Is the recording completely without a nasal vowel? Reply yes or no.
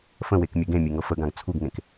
no